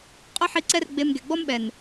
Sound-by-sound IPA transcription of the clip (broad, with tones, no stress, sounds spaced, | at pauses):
qʼ ʊ˦ ħ i˧ ǀ ɛ˦ r ɡ͡b e˧ m ɡ ɛ˨ ɡ͡b ɔ˦ m ɓ ɛ˨ n